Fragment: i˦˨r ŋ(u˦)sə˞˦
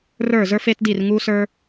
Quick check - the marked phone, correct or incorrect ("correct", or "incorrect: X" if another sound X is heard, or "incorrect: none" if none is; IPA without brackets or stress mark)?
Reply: correct